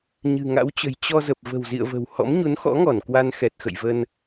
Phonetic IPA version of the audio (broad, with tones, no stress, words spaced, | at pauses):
ɲɨ̤˨˩ŋa̰˧˥wt͡ɕə̤˨˩j t͡ɕɔ˧zə˨˩p̚ və̤˨˩wzḭ˧˨ə̯və̤˨˩w hɔ̰˧˥mɲu˨˦nxɔ̰˧˥ŋɔ˧˩n kwa˧nxɛ˨˩t̚ xə̰˧˨jvə˧n